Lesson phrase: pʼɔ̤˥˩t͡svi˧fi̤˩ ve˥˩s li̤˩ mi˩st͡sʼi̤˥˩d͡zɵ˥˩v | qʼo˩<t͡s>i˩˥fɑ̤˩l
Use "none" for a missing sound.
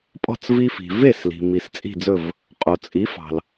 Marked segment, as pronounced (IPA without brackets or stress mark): t͡sʼ